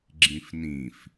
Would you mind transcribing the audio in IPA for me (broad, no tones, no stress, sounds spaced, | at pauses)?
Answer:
ɡ͡ǁ ĩ f n ĩ f